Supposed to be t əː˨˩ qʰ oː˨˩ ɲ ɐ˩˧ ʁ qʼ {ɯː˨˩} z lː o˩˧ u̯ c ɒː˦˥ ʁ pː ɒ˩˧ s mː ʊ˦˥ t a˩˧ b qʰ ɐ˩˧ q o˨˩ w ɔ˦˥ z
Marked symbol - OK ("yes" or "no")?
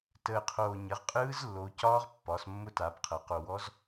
no